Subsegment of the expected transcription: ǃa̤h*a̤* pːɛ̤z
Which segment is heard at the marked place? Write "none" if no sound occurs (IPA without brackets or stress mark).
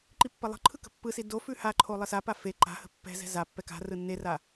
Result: ə̤